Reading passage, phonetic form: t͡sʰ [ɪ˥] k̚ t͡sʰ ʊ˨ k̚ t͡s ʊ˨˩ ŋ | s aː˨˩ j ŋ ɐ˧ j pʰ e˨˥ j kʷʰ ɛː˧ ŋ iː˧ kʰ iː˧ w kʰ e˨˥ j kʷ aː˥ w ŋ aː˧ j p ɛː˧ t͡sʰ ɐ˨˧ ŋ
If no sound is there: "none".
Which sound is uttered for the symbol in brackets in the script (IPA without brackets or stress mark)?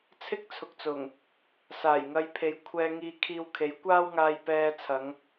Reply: ɪ˥